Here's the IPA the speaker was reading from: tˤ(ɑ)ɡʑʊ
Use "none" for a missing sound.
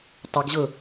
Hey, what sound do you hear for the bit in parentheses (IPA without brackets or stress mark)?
ə